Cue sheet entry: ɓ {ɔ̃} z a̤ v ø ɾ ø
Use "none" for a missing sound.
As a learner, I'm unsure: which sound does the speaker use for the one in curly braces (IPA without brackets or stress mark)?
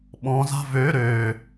ɔ̃